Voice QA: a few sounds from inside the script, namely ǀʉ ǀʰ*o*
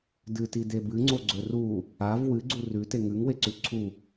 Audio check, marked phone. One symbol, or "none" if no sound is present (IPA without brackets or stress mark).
u